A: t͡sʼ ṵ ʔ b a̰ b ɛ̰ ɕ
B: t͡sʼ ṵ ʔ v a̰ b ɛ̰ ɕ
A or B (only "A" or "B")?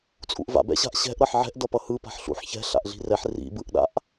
B